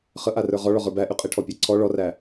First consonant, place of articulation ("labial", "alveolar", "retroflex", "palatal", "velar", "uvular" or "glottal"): uvular